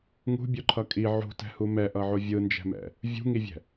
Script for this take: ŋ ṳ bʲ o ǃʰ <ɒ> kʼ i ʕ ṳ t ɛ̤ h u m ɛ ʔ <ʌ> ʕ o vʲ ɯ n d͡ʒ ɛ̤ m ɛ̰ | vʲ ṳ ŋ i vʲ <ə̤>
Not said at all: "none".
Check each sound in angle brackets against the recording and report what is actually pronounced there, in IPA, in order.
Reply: ʌ, ʌ, ɛ̤

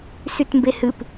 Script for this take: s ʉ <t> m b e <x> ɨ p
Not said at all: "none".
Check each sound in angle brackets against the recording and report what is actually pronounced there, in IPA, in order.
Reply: t, h

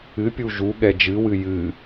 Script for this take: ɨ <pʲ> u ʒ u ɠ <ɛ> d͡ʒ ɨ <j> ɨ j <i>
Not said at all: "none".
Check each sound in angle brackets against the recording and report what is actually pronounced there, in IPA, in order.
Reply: pʲ, ɛ, w, ɨ

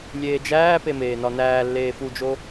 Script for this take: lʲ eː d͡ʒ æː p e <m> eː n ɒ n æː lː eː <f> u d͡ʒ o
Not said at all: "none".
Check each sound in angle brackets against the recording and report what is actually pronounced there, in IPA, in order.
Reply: m, f

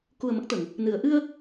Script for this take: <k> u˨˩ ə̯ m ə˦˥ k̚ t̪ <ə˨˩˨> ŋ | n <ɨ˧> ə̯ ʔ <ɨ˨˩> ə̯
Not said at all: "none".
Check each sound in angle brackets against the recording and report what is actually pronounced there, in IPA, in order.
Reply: k, ə˨˩˨, ɨ˨˩˨, ɨ˧

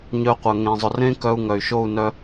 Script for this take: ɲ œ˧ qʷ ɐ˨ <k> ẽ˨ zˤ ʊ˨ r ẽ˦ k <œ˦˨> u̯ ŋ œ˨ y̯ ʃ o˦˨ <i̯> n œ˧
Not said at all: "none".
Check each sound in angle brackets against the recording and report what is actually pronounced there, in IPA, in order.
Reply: ŋ, œ˧, u̯

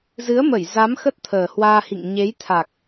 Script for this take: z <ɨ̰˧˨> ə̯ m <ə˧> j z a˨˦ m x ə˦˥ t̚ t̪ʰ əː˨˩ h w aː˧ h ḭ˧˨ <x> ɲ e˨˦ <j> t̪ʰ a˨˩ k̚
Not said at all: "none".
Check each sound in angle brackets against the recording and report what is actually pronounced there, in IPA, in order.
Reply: ɨ˨˦, ə˧˩, ŋ, j

